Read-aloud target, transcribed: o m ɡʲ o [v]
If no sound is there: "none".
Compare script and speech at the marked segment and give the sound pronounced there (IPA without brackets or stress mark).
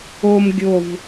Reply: v